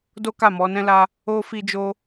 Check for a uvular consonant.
absent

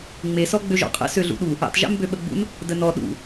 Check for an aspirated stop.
absent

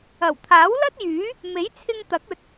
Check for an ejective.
absent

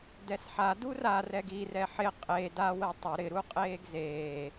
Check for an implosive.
absent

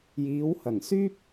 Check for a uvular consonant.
absent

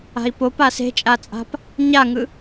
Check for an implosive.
absent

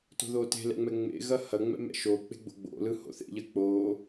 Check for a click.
absent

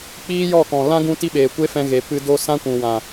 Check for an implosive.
present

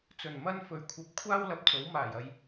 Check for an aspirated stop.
present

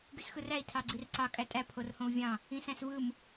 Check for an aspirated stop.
present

